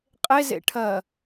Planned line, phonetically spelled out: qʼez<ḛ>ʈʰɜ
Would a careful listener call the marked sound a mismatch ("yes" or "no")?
no